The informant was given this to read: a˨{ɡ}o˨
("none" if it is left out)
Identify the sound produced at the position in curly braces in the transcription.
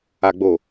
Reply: ɡ͡b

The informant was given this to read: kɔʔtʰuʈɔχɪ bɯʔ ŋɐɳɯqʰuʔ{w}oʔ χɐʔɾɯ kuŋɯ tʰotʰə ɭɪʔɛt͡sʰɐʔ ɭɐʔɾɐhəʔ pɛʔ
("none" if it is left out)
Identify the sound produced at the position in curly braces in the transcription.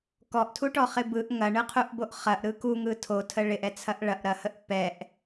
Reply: b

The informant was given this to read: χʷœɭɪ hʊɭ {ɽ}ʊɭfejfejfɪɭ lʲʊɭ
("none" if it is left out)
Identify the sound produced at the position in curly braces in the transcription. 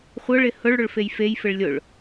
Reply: ɽ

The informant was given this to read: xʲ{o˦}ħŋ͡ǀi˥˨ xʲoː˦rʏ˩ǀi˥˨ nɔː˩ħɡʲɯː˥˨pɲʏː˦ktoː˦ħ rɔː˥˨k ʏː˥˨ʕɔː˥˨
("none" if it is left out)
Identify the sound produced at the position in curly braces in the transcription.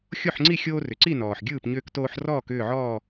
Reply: o˥˨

